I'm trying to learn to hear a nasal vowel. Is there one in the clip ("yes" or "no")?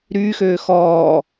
no